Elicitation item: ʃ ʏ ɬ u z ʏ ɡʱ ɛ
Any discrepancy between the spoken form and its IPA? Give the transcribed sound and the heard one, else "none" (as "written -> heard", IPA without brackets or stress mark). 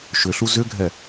none